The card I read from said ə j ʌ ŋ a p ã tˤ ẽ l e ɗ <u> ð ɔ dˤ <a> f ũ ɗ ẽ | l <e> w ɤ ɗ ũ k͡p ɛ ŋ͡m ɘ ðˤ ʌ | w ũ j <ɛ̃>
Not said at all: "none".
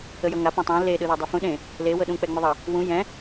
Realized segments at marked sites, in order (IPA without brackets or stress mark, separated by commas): ɯ, a, e, ɛ̃